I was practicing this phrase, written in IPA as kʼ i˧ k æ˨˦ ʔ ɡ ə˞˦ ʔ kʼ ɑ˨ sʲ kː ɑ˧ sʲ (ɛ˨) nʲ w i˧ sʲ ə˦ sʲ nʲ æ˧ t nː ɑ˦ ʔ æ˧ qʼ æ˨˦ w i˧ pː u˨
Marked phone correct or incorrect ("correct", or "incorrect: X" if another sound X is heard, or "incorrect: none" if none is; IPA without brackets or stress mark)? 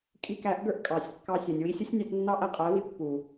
correct